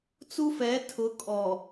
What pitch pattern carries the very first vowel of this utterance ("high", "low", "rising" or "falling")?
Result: high